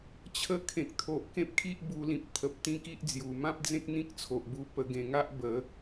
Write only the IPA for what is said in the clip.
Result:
t͡ɕʰ ə˧ kʰ ẽ˨ k̚ t̪ʰ o˨ ʔ k ẽ˦ p̚ kʰ i˦ ʔ b u˧ l ĩ˨ p̚ t̪ʰ ə˨ p̚ t̪ ĩ˦ k i˦ ʔ d͡z j u˨˩ m ã˦ p̚ d͡z ẽ˦ k̚ n̪ ĩ˦ k̚ t͡sʰ o˨ ʔ b u˧ p ə˧ ɡ ẽ˧ ŋ a˦ ʔ b ə˨˦

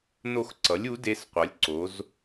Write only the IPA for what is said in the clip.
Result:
n o˦˨ x ǀ ʌ˩˥ lʲ u˩˥ d e˧˥ s qʷ ʌ˩˥ lʲ ǀ o˩˥ z

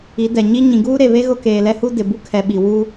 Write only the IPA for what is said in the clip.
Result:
i˨˦ d ɛ˨ ɲ i˦ ɲ ĩ˨ ɡ uː˦ ɾ e˨ β e˦ ɣ ʊ˦ k eː˨ l ɛ˦ h u˦ d ɪ˨ b u˦ kʰ ɛ˨ ɓ i˨ w uː˦

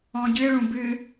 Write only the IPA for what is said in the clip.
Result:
ɔ̃ ɟ ɨ ɭ ũ b ɨ

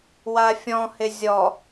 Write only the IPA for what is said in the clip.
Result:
w a fʲ ɔ̃ h ɪ zʲ ɔ

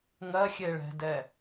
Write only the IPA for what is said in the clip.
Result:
ŋ ɜ xʲ e ɭ ɛ̤ d ɛ

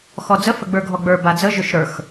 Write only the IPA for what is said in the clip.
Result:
x ɔ d͡z ə f ə ɡ͡b ə˞ ɡʱ ɔ ɡ͡b ə˞ b a d͡z ə ʒ ʏ ʃ ɾ ə˞ x

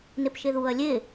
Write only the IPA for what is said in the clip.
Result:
n e p ʃ e ð u ɐ̯ lʲ e

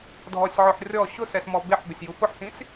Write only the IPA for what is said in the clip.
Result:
dʱ ɔ sʲ ʕ ʊ ħ rʲ ɔ ɕ ʊ s ɛ s m ɔ b e ħ b ɪ sʲ j u f ʊ ħ s ĩ s

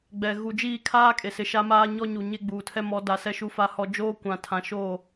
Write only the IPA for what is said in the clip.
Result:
ɡ͡b ɛ˨ ɣ u˨ d͡ʒ iː˦˨ kʰ aː˦ kʼ e˨ s ɪ˨ ʃ a˦ m aː˦ ɲ ɔ˦ ɲ u˨ ɲ e˦ ɡ͡b uː˨ tʰ ɛ˦ m ɔ˨˦ d a˨ s ɛ˦ ʃ u˦ f a˦ h ɔ˦ d͡ʒ oː˦ kʷ ã˨ tʰ ã˨ ʃ oː˦˨

